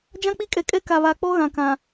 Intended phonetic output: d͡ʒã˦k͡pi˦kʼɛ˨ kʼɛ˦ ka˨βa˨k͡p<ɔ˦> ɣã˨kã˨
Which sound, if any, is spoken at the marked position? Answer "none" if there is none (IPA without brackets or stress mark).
ɔ˦